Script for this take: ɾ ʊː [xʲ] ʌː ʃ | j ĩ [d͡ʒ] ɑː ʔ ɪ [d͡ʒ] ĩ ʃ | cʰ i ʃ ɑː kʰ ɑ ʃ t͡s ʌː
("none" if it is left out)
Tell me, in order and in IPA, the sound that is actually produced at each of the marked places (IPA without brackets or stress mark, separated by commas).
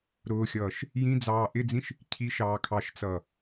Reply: xʲ, d͡z, d͡z